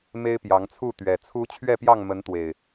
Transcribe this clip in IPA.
m e˦ ɪ̯ p j ɑ˨˦ ŋ t͡sʰ u˥˨ t̪ ɥ ɛ˨˩ t͡sʰ u˦ t͡ɕʰ ɥ ɛ˥˨ p j ɑ˥˨ ŋ m ə˨˦ n t̪ w e˨˩ ɪ̯

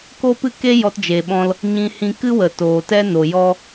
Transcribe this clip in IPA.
k o˦ p ɨ˦˨ k e˦ j ɔ˧ t d͡ʒ e˨ ɓ ɔ̃˧ l | ɲ ĩ˧ h ĩ˧ k ɨ˦ w ə˨ t oː˨ t ɛ˦ n o˨ j ɔ˧

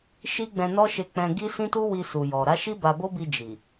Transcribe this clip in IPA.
ʃ i˦ ɡ͡b ɛ̃˧ n ɔ˦ ʃ e˧ k͡p ɛ̃˧ ɡ i˦ s ĩ˦ t u˦ w i˧ s u˨ j ɔ˨ ɾ a˨˦ ʃ i˦ b a˧ b o˦ b i˧ d͡ʒ i˨

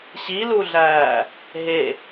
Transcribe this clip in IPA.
ɕ i l u ɮ æː | ɦ e

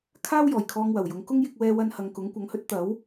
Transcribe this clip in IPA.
kʰ aː˥ w j ɔː˨˩ j kʰ ɔː˧ ŋ w ɐ˨˩ w j ʊ˨˥ ŋ k ʊ˥ ŋ j ɪ˧ k̚ w ɛː˧ w ɐ˧ n h ɐ˨ ŋ k ʊ˨˥ ŋ kʷ ɐ˨˧ ŋ h ɵ˥ t̚ t̪ ɐ˨˥ w

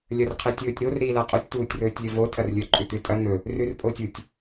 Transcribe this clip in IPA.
lʲ ɐ r qʰ e tʲ ɵː tʲ ɾ o r ɾ iː l a qʼ o tʲ t̪ uː tʲ r ɵː tʲ lʲ ɵ v o tʰ ɐ r lʲ ɵ ǃʼ ʉ t̪ ʉ tʼ ɐ n̪ ɵ | r ʉ r pʼ o tʲ u tʲ

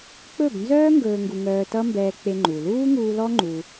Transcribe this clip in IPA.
k͡p ɵ˦˨ b n z œː˦ ŋ ɡ ɵː˨ ŋ ɡ u˨ ŋ œː˧ t ʌ˦ m b ɛː˧ k͡p e˧ ŋ͡ǃ u˨ l uː˦ ŋ uː˧ l ɔ˦ ŋ͡ǃ u˧

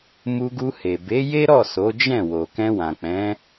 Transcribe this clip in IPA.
m u˧ ɡ u˧ h e˨ b e˨˦ j e˦ ɾ ɔ˦˨ s o˨˦ d͡ʒ ɛ̃˦˨ w o˨ k ɛ̃˧ w ã˨ k͡p ɛ̃˨˦

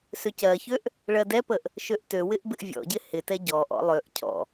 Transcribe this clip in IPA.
s ø c ɜ ç ø ʔ | ɭ ɜ d ɛ p ə ʔ | ʃ ø ʔ t ø w ɪ ʔ b ɪ ʔ vʲ ɔ̰ ɟ ɪ h ɪ t ɛ ɟ ɔ ʔ ɔ̰ lˠ ø ʔ cʰ ɔ̰

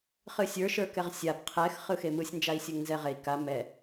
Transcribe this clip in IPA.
χ ɨ sʲ ə˞ ʃ ə˞ k ɛ ʁ sʲ a b qʰ ɛ x χ ɯ x e m ɯ sʲ n d͡ʒ a i̯ sʲ ɨ ŋ n z ɛ ʁ e i̯ k a m ɛ

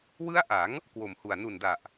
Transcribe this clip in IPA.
w ɯ˦˥ a̯ ʔ a˩˦ ŋ | k w o˨˩ m h u˨˩ a̯ n u˨˩ n d a˨˩ ʔ

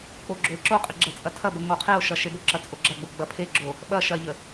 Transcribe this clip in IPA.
k͡p o ɡ͡ǁ o e̯ ǁ o qʼ ə ɡ͡ǁ ɐ t͡sʼ ɐ tʰ ɐ b ə ŋ o qʰ e o̯ ʃ ɐ ʃ e b o ǁ ɐ t͡sʼ o ɡ͡ǁ ɐ ɡ͡b o ɡ͡b ɐ pʰ e ɡ͡ǁ o | ɓ ɐ ʃ ɐ ʎ ə

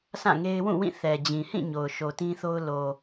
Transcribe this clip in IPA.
s ã˦˨ ŋ e˦ ɪ̯ w ũ˦˨ w ĩ˦˨ θ ɛ˨ d͡ʑ ĩ˨ h ĩ˦˨ ɲ o˨ ʊ̯ ʃ o˨ t ĩ˦ θ o˦ ʊ̯ l o˨

